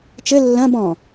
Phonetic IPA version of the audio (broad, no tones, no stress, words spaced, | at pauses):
t͡ʃɘ lːɐ̃ bɔ̃